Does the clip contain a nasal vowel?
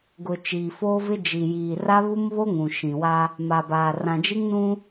yes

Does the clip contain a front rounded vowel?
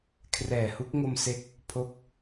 no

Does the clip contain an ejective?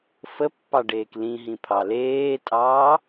yes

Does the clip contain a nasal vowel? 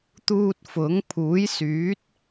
no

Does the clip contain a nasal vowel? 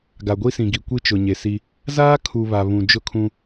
yes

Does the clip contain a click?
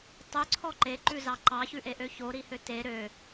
yes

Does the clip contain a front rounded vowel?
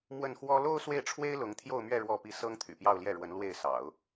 yes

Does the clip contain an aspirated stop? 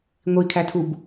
yes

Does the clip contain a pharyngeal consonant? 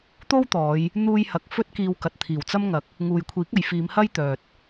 no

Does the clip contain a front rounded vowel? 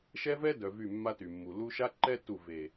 yes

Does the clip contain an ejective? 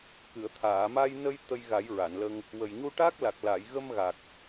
no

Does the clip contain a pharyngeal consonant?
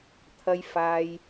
no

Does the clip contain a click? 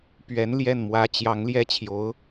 no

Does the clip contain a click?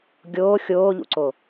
yes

